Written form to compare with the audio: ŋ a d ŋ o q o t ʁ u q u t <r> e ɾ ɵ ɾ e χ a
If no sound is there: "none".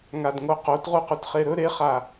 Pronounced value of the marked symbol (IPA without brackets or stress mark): χ